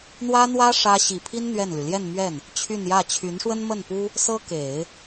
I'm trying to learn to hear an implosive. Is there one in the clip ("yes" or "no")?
no